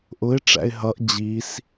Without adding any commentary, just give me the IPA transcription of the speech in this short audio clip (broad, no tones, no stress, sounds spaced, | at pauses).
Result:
ʔ ʊ ɪ̯ ʈ͡ʂ æ̰ ɪ̯ ɦ ʌ ʔ d͡ʑ i s